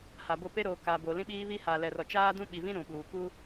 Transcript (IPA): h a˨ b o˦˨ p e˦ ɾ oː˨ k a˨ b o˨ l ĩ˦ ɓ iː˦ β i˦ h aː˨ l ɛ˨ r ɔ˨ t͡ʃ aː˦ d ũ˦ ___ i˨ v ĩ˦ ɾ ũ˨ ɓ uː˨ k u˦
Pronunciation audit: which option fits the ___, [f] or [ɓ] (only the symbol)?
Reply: ɓ